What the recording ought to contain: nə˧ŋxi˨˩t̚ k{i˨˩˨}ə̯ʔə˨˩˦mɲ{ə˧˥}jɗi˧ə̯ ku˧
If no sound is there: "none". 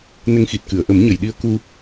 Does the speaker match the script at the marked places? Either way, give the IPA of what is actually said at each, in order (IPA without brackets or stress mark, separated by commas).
ɨ˨˩˨, ə˨˩˨